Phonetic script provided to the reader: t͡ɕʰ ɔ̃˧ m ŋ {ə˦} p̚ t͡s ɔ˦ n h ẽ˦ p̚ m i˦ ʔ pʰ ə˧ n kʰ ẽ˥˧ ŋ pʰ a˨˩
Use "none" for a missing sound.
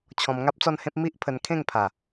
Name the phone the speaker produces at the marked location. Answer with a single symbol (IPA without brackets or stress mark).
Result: a˦